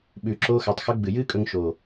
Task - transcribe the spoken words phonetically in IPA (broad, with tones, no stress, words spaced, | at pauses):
ɓʉː˨ǁoː˧xa˨tˤ xɵ˧ɡ͡bɨ˨jɨː˦kʼɵ˧ŋ ʃoː˨